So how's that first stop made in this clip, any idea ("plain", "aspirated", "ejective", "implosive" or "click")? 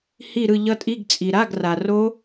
ejective